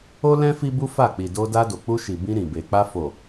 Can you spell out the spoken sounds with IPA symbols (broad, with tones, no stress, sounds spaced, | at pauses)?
o˦ l ɛ̃˦ f i˦ b u˦ f a˦˨ k͡p i˨ d o˧ d a˧ d o˨ k͡p u˧ ʃ i˨ b ĩ˧ ɾ ĩ˨ b e˨ k͡p a˧ f o˨